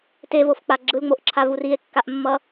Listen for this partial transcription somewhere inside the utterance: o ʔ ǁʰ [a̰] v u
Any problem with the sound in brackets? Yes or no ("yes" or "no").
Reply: yes